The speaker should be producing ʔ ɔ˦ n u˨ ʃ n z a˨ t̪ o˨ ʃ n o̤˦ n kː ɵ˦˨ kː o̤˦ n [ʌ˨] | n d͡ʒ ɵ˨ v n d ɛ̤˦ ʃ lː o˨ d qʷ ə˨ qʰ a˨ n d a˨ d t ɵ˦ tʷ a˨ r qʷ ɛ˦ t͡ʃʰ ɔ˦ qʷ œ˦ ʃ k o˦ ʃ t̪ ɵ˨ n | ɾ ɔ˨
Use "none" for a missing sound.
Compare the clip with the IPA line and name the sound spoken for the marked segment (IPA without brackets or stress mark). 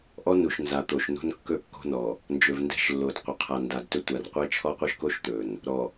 ɔ˨